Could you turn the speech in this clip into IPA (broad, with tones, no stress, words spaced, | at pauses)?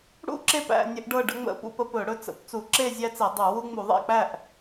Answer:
ɽṵ˥˨ǁe˥˨pæ̰˥˨ nʲə˦ʔɖɤ˥˨ɖə˦ŋ͡mə̰˥˨ pṵ˥˨pə˦pɵ˧˩˧ ɽɵ˥˨t͡sə̰˧˩˧p t͡su˧˩˧ǁe˥˨ zʲæ˦t͡se˧˩˧dˤu˧˩˧ wu˦ŋ͡mu˧˩˧ ðˤæ̰˥˨k͡pæ˥˨ʔ